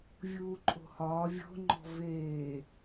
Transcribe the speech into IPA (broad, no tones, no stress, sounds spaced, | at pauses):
vʲ uː ǃʼ o̤ h ɒː vʲ o̤ ŋ͡ǃ ɔ̤ v eː